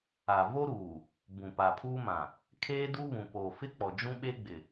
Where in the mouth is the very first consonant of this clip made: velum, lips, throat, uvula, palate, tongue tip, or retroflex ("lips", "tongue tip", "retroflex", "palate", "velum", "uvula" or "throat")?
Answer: lips